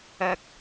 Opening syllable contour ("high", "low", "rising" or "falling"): low